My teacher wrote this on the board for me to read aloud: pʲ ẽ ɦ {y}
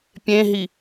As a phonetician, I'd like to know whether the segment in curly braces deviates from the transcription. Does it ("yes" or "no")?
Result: yes